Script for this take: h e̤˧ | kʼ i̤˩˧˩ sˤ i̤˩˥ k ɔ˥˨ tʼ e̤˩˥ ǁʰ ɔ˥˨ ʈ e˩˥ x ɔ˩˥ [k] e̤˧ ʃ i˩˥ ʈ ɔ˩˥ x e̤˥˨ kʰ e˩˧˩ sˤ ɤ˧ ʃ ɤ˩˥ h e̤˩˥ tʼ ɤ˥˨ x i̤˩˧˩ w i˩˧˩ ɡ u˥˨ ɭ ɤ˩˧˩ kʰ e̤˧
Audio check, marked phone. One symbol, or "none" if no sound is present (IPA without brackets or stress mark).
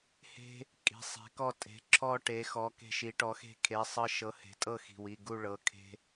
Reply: k